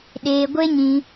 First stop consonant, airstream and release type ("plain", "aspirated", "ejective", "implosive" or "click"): implosive